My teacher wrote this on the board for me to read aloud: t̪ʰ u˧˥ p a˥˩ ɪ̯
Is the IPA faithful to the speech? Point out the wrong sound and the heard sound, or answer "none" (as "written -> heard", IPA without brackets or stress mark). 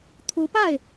none